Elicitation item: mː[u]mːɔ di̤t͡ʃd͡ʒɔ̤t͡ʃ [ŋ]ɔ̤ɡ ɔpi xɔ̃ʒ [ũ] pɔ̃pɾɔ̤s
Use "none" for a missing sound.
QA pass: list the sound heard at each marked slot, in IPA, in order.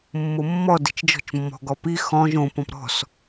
o, mː, õ

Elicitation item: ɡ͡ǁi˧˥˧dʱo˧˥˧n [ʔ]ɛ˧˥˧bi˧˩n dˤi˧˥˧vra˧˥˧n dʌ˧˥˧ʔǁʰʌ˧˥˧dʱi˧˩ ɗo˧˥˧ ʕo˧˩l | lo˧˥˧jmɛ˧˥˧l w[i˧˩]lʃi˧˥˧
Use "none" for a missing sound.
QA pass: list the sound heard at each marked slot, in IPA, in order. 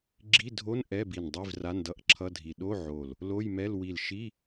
ʔ, i˧˩

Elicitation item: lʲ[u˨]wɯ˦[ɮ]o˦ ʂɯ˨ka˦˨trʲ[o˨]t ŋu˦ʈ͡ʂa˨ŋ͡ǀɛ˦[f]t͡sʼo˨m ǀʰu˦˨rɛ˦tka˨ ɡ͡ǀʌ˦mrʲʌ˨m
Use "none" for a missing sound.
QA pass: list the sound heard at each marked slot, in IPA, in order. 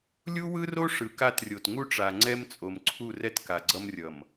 u˦, r, o˨, m

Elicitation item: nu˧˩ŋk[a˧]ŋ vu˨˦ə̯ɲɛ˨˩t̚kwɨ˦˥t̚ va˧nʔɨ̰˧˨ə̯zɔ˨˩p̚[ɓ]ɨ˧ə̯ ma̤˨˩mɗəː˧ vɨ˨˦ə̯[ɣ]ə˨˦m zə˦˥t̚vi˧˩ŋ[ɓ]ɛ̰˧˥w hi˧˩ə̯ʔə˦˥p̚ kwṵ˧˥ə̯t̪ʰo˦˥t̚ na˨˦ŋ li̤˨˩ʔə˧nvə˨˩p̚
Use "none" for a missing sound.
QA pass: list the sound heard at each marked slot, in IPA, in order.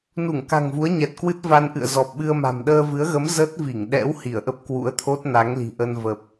a̤˨˩, ɓ, ɣ, ɗ

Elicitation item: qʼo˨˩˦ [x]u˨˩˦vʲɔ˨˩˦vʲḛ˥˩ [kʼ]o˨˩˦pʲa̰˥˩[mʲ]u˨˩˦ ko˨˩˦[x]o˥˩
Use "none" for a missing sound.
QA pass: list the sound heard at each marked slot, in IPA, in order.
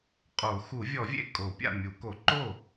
x, kʼ, mʲ, ǃ

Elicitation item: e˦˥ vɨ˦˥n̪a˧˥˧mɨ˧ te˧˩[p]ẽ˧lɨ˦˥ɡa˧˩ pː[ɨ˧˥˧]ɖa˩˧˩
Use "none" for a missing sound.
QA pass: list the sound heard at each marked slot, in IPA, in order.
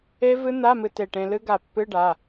ʈ, ɨ˧˥˧

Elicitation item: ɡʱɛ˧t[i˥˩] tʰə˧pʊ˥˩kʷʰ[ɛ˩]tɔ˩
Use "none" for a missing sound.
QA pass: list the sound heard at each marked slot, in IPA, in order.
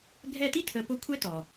i˥˩, ɛ˥

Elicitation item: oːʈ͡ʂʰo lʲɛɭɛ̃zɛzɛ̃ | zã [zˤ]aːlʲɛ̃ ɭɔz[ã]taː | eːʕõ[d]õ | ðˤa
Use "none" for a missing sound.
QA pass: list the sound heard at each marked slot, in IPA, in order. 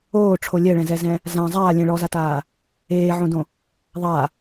zˤ, a, d

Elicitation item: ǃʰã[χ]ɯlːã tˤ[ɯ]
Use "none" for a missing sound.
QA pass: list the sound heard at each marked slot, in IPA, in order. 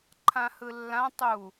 h, u

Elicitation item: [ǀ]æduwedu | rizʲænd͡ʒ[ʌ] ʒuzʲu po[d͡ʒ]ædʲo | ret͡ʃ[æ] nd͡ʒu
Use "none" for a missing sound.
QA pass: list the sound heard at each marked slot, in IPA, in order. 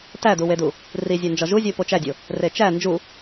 t, ɒ, t͡ʃ, æ

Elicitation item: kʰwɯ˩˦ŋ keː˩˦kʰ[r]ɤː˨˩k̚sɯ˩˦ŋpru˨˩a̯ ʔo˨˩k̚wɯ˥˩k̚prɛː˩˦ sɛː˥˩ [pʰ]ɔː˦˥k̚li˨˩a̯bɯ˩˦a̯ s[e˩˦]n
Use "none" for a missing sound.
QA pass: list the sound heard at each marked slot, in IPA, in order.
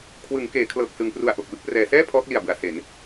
l, pʰ, e˩˦

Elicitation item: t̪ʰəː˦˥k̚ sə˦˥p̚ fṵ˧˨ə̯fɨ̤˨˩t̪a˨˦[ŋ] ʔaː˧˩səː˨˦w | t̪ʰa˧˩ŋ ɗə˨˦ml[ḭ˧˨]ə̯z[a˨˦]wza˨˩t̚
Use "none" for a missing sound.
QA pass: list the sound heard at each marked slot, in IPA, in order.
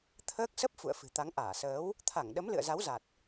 ŋ, ɨ̰˧˨, a˨˦

